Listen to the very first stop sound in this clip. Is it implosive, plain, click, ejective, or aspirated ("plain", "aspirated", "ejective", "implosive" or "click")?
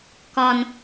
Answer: plain